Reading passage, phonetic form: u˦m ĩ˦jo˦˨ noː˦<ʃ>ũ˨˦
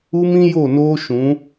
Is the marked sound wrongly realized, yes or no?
no